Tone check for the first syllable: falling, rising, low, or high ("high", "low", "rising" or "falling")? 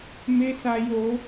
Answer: high